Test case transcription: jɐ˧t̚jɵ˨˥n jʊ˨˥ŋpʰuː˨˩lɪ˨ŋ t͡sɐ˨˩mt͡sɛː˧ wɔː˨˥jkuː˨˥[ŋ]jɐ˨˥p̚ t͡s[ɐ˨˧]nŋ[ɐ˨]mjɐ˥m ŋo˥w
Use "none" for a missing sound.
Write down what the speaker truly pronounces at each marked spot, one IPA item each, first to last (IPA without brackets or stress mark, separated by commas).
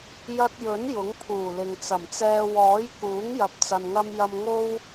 ŋ, ɐ˧, ɐ˥